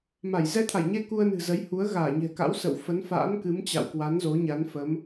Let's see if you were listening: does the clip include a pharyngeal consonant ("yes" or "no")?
no